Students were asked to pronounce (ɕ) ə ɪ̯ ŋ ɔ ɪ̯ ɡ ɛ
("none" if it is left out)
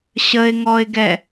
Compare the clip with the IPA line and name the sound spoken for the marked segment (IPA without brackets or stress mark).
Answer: ɕ